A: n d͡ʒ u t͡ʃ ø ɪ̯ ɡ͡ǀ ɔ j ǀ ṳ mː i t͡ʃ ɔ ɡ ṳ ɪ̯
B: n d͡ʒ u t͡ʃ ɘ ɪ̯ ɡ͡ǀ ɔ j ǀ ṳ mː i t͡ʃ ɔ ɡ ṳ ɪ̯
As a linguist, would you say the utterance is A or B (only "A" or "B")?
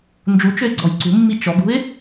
A